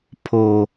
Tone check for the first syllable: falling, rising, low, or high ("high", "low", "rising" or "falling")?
low